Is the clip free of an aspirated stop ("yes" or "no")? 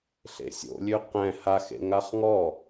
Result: yes